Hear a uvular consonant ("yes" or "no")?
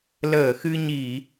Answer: no